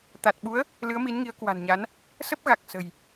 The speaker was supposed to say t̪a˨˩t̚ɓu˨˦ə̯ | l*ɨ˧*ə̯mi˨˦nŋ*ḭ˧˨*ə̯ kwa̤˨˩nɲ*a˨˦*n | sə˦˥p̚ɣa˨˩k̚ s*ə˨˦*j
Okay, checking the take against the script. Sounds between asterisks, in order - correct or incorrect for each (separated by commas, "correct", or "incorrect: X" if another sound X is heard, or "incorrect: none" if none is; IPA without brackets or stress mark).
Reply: incorrect: ɨ˨˦, incorrect: i˨˦, correct, incorrect: ə̤˨˩